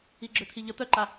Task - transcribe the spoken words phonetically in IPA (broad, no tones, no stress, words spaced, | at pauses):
iɡ͡ǁøt̪ʰiʎə t̪œǃa